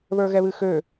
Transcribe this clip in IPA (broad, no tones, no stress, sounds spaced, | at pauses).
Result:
β ə˞ ɣ ɛ β ɨ x ø